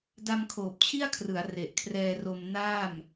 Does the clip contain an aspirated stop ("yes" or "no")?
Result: yes